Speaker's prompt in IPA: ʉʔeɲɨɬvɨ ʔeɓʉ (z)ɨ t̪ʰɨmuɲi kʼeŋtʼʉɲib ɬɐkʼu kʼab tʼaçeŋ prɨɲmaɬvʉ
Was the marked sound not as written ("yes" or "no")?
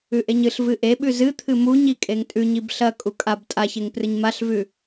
no